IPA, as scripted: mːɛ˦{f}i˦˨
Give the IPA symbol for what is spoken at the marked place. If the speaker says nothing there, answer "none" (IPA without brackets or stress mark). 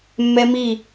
m